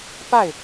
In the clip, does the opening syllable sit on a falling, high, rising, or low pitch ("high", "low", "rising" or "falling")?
falling